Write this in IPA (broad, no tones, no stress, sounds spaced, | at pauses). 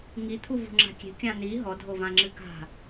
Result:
ŋ i t̪ʰ u v ṳ ŋ͡ǁ a̤ kʲ e̤ kʲ ã n i ɦ ɔ dʱ o v ã ŋ͡ǁ ɨ k a̤